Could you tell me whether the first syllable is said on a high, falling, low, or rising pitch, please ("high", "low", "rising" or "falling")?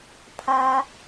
high